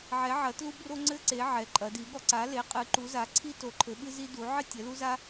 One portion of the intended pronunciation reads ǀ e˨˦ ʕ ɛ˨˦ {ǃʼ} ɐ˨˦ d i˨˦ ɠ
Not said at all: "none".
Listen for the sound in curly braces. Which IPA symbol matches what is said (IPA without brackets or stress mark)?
ǃʼ